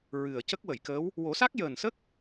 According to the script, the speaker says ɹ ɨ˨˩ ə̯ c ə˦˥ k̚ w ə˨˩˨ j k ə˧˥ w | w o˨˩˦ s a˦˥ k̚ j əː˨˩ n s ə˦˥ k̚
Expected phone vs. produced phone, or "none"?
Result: none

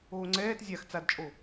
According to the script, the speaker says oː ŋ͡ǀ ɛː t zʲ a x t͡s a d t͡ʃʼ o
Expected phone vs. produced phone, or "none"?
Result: none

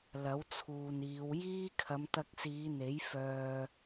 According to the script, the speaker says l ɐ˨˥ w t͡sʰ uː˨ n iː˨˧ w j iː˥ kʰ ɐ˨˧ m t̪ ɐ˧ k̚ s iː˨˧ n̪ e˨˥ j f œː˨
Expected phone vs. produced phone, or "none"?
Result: none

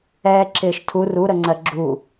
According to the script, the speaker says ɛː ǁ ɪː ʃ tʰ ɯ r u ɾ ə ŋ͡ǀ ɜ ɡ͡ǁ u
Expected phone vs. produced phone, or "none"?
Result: ɯ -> u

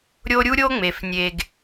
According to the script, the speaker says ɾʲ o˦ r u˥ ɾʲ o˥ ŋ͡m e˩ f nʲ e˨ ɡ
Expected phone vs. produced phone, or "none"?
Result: r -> ɾʲ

